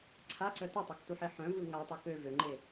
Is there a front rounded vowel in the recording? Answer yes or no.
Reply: yes